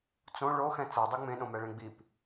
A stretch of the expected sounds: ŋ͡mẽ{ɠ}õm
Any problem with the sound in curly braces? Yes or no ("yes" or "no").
yes